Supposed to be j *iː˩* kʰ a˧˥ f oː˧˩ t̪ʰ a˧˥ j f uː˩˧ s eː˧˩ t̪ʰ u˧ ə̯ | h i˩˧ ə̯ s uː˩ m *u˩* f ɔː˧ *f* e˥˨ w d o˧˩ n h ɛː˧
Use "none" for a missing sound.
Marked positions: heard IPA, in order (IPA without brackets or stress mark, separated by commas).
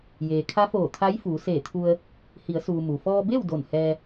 eː˩, u˩, b